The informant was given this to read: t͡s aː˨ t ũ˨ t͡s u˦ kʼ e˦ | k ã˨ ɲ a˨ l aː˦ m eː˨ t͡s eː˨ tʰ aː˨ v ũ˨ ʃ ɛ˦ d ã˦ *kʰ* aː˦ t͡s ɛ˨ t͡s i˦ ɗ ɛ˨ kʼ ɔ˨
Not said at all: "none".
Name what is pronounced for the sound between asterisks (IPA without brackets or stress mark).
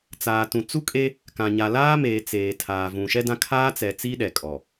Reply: kʰ